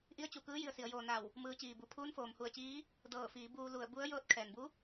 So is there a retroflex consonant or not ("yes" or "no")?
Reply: no